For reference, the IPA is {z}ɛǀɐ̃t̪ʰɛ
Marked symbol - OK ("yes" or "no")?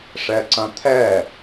no